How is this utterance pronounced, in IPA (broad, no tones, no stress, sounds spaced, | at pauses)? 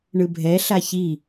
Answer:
ɳ ɯ bʱ ɛ ɬ a ç i